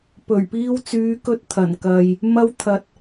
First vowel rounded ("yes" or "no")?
yes